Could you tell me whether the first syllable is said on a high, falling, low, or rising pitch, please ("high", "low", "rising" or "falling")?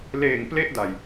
low